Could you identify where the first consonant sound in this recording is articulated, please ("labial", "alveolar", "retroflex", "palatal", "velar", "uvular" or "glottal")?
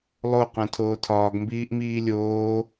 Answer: alveolar